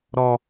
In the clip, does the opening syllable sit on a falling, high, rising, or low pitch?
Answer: high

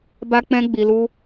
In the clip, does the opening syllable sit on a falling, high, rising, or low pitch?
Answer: high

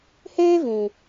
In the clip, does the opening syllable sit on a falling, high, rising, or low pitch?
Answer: high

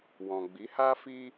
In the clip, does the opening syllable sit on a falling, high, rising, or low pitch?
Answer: low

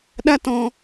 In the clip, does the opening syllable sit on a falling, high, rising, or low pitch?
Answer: high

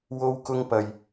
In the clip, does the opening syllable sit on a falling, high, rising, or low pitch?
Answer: high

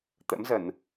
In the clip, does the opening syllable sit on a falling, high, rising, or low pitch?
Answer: rising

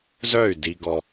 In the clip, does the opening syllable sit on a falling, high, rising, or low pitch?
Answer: falling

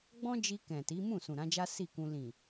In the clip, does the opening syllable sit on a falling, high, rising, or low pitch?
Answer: high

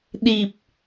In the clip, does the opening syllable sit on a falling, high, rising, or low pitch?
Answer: low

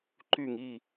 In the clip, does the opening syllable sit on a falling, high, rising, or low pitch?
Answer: falling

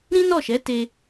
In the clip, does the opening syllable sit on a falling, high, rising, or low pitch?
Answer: high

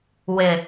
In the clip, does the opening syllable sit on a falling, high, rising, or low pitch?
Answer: low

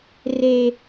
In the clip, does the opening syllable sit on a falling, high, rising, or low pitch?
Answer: high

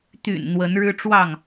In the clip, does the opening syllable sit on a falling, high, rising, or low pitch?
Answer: low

